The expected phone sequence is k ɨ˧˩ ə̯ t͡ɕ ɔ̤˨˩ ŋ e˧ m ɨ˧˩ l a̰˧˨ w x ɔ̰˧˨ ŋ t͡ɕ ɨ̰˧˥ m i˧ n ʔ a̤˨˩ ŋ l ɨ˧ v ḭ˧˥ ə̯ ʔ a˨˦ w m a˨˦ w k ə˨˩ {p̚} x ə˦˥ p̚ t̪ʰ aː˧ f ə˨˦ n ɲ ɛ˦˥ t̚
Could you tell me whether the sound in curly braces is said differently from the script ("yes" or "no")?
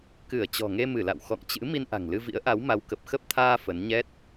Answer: no